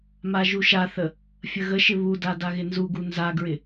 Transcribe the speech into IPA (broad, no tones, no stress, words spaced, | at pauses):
maʒuʃaθə | fʲəɣəʃɪ βuda daɣɪnzuɡu nzaɡɹɪ